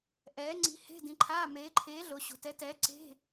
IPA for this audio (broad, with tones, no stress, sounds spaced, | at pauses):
ʔ ɛː˨˥ ŋ͡ǀ i̤˨˥ h e̤˧˥˧ d ĩ˨˥ ǃʰ aː˧˥˧ m eː˨˥ ǃʰ eː˨˥ ɮ o˨˥ ɕ o̤˨˥ t ɛ˨˥ t ɛː˨˥ ǀ e̤˧˥˧